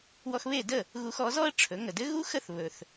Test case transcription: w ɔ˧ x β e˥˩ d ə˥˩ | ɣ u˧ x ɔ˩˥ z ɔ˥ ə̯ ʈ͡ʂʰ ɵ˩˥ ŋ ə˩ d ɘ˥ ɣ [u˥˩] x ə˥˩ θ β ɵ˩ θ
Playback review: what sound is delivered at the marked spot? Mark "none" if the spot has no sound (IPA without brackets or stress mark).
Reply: u˥